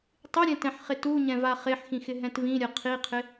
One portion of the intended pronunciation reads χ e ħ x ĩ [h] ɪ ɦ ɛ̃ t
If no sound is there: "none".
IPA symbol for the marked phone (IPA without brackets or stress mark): x